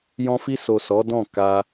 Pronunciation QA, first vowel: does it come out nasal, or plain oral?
nasal